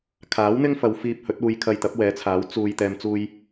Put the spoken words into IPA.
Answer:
kʰaː˨˥wn̪ɪ˥ŋfɐ˨˧w fiː˧p̚hɵ˨˥t̚uː˧jkʰɐ˧j t̪ɐ˨˥p̚wɛː˨˧t͡sʰaː˨˥w t͡suː˨j t̪ɛː˨mt͡suː˧j

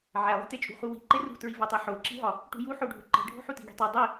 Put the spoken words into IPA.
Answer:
ʕælˠi̤tet͡ʃʼṳ χuwi̤ǃe rṳtɹivɒtˤi ħoǁi̤ɦɒ | ʈṳju ħoɖʱuǃi̤ɖʱo̤ ħuti̤ɡi̤tˤi dˤi

